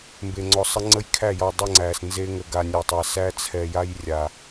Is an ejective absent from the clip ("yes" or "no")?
yes